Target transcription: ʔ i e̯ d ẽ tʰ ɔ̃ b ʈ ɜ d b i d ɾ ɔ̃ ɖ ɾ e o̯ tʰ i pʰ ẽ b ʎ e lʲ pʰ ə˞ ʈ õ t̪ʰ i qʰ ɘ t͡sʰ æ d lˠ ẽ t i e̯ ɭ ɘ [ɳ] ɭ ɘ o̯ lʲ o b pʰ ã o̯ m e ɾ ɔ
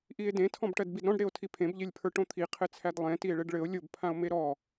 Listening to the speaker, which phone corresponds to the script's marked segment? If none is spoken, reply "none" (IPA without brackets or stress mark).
ɖ